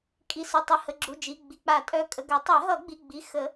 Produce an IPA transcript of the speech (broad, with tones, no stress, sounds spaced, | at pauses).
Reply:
kʼ i˩˧˩ s u˩˧˩ tˤ u˩˧˩ h ə˩˧˩ ɡ͡ǁ u˩˧˩ d͡ʒ i˩˧˩ ɡ͡b i˩˧˩ k͡p a˨˩˦ tʼ œ˩˧˩ kʼ ə˩˧˩ ɡ œ˨˩˦ tˤ ɛ˨˩˦ ɦ ʌ˨˩˦ ɡ͡b i˩˧˩ ɡ͡b i˩˧˩ x ə˨˩˦